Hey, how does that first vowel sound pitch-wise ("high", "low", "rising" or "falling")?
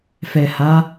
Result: low